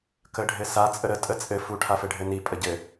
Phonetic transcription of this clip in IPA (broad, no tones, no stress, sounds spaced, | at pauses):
k ə ɖʱ ɘ s a t͡sʼ ə ɾ ə tʼ ə t͡sʼ ɘ f u ʈʰ a f ɘ ɖʱ ɘ n i pʼ ə ɟ ɘ